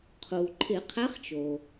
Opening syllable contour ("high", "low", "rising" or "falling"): low